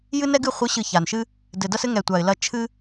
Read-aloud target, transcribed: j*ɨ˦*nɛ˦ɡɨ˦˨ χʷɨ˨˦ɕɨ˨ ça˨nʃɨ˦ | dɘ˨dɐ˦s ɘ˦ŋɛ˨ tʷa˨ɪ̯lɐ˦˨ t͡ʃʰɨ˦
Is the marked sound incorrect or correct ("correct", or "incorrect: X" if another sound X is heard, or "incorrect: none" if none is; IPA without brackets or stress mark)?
correct